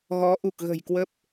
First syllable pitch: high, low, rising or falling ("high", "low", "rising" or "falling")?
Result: rising